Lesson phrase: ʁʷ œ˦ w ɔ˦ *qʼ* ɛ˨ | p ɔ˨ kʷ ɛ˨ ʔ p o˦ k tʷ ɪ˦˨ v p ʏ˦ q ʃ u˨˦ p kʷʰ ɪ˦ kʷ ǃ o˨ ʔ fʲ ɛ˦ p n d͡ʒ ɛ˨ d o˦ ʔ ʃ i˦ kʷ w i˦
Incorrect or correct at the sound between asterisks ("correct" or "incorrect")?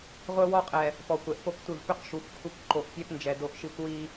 correct